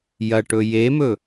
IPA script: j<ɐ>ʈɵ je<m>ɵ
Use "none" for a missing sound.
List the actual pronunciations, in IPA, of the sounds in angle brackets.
ɐ, m

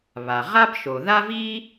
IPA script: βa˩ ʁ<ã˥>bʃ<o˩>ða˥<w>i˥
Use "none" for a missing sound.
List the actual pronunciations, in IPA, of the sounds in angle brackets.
a˥, o˩, v

